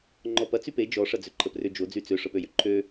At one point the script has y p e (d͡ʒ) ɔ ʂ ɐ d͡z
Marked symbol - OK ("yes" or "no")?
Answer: yes